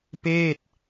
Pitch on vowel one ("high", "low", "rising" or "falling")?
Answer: falling